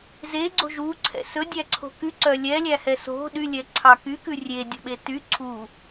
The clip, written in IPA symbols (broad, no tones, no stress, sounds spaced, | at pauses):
z e ɡ͡ǀ o̤ ʒ u ǀʰ ɛ̰ s ɵ dʲ æ ǀʰ o̤ k y ǀ œ lʲ ɛ lʲ æ h ɛ s o̤ ɗ y lʲ ɛ ǀʰ ɑ k y k ʉ rʲ e dʲ ɔ̤ ɓ e t y ǀʰ u